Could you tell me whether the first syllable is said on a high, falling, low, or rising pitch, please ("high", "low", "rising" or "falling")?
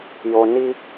low